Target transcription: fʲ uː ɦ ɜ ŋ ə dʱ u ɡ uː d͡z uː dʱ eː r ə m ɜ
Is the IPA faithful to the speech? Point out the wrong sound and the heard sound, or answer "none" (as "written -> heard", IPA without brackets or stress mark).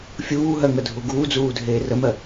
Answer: none